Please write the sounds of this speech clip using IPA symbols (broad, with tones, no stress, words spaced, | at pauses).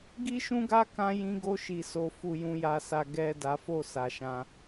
ɡi˦ʃũ˦ɡa˦ kã˧jĩ˧ ɡo˧ʃi˨so˨fu˨ jũ˨ja˨sa˨ ɡɛ˨ da˨˦fo˦˨sa˨ʃã˧